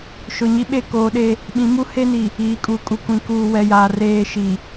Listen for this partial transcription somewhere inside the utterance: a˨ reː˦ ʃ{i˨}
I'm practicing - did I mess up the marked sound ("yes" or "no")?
no